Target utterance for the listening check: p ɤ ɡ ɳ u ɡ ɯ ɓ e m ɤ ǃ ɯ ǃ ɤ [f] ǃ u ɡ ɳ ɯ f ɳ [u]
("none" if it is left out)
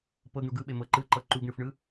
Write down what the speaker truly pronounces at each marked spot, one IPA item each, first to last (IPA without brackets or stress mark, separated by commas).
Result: none, ɯ